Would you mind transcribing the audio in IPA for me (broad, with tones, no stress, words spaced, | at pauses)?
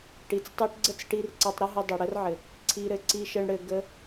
ʈi˨t͡stˤi˧ʈɡ͡ǀə˦t͡sʈi˧r ǀɘ˧tˤɾə˦ɦɘ˧ dˤɘ˨ɽə˦rʕɘ˨ | ǀʰi˧ɾɘ˨ ǀi˧ʃɘ˧ɳɽɘ˧ ɡə˧